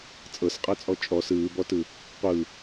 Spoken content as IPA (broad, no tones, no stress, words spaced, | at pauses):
t͡sʼɤsqʼɤt͡sʼɔ t͡ʃʼɔs ɯːbɔtɯ | qʷɯ